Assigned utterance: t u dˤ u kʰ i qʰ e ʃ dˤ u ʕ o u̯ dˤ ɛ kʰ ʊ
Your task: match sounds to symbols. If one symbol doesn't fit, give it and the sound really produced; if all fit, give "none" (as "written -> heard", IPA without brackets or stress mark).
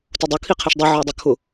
none